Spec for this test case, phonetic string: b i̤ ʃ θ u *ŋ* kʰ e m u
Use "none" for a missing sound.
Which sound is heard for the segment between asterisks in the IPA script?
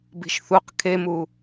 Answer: q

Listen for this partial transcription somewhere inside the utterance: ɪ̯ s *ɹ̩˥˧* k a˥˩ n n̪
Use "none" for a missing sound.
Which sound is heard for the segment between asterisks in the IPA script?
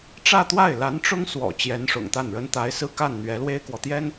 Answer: ɹ̩˥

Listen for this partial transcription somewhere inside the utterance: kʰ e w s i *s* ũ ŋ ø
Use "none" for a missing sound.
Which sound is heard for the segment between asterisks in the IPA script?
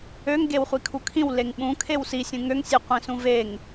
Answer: sʲ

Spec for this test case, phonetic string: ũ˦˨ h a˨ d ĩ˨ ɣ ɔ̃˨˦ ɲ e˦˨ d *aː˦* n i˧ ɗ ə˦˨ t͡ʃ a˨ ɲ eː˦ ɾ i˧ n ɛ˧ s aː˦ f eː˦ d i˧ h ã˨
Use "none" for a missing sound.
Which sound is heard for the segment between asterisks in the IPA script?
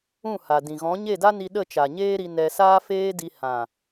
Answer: a˦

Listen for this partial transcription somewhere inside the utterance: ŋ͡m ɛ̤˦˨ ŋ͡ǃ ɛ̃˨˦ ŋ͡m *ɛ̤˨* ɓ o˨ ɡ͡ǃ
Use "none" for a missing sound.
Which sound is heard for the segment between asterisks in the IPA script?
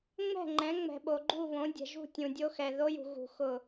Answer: ɛ̤˨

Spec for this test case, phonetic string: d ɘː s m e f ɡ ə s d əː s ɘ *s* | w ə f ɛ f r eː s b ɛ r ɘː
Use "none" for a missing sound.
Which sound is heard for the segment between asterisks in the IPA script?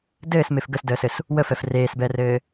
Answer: s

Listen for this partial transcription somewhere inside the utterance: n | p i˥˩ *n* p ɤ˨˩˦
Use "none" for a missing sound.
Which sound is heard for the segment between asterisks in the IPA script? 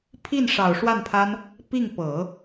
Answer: ŋ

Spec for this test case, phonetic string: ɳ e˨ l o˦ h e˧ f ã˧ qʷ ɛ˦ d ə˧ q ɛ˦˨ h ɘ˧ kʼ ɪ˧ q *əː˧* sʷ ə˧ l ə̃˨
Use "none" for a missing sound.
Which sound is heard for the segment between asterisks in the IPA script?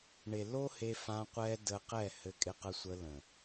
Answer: ə˧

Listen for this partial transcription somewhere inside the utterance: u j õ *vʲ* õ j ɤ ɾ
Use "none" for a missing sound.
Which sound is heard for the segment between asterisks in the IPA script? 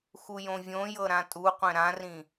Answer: vʲ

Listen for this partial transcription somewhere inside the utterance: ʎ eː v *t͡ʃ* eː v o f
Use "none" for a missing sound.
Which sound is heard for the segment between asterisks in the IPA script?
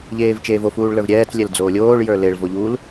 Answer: t͡ʃ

